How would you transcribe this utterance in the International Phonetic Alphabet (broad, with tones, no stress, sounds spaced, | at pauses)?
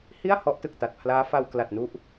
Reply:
h i˥˩ a̯ h ɔ˦˥ ʔ t ɯ˨˩ k̚ t a˨˩ t̚ pʰ l aː˦˥ f a˧ w k l a˨˩ t̚ n u˦˥ ʔ